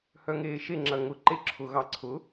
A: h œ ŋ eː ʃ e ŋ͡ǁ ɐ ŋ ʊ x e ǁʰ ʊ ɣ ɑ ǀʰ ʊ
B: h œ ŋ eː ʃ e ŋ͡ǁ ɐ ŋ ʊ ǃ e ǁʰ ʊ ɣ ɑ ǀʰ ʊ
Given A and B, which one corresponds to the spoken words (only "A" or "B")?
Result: B